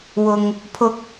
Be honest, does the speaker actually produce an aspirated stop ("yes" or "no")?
yes